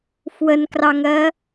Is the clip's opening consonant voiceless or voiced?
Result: voiceless